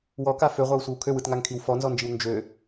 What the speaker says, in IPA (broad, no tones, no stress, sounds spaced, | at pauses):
w ɔ k a f ø ʁʷ a w sʷ i w kʰ ø w ɯ t ŋ a ŋ kʰ i w f ɔ n z ɔ n d͡ʒ i w n d͡ʒ ø